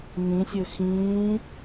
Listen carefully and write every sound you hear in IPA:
ŋ ĩ sʲ ɘ x ĩː

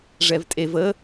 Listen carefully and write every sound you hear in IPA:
ʐ ɛ v tʼ e v ə

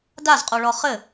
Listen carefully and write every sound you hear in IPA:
d a z qʼ o ɭ ɔ χ ɘ

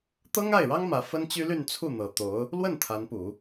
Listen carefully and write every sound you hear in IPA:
t̪ ɤ˥ ŋ a˥˩ ɪ̯ ɻ ɑ˥ ŋ m ä˧˥ f ə˥ n t͡ɕ y˥ l y˥˧ n t͡sʰ u˥˩ n̪ ɤ˨˩ t̪ o˧˥ ʊ̯ | l w ə˥˩ n t̪ʰ a˧˥ n p u˨˩˦

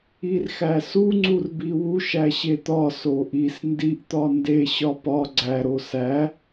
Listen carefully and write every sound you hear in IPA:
i r x æ s u ŋ͡ǀ u r b i w u ʃ æ ɕ e t̪ ɒ s o ʔ i s n d i ʔ t̪ ɒ n d e ɕ ɒ p ɒ ɡ͡ǀ æ ɾ o s æ

